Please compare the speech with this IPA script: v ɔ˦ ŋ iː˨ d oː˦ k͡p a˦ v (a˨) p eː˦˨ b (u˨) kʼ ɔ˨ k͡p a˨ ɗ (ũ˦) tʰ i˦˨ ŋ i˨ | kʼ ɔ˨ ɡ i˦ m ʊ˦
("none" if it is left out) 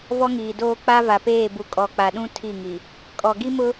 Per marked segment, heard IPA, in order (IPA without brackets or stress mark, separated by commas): a˨, u˨, ũ˦